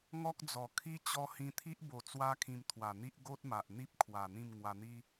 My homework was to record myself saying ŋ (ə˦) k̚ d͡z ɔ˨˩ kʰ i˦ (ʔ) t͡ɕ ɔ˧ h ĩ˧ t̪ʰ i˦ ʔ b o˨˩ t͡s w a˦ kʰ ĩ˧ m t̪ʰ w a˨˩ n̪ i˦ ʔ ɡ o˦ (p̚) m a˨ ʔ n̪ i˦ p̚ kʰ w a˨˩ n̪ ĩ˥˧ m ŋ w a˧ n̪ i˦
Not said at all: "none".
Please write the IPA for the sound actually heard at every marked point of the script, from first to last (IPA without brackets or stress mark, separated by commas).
ɔ˦, none, t̚